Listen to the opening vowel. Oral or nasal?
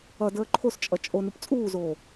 oral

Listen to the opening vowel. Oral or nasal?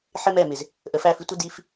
oral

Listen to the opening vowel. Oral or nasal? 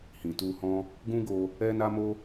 nasal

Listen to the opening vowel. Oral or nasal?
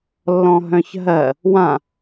nasal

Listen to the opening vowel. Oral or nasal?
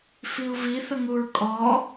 oral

